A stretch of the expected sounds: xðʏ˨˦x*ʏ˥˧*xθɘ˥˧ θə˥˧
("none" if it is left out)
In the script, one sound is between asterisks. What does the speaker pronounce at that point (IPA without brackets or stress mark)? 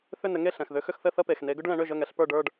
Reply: ʏ˥˧